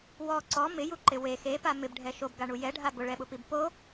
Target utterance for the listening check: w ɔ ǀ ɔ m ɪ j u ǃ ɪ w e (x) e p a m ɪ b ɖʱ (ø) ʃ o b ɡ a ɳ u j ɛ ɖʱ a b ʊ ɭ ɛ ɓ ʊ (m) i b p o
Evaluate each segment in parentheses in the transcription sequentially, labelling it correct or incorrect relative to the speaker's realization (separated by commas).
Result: correct, incorrect, incorrect